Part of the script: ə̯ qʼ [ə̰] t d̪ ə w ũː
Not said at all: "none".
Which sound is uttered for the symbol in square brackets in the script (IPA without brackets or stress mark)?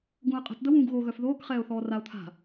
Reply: ə̤